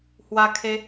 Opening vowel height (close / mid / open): open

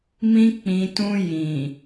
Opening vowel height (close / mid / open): close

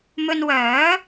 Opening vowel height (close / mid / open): mid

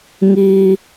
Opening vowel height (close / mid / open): close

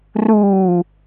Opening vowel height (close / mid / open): close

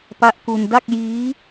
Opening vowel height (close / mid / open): open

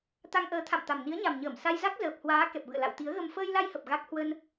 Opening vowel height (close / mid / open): open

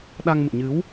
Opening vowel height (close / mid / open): open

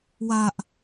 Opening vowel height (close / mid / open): open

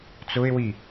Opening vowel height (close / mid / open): close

